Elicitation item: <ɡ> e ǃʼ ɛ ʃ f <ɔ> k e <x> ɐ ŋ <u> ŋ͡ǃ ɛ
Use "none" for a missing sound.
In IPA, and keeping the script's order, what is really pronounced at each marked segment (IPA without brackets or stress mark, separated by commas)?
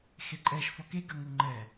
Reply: x, ɔ, ɡ, u